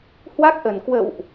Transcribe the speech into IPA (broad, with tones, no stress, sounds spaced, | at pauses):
h w a˦˥ k̚ ʔ ə˨˩ n k w ə̰˧˨ w ʔ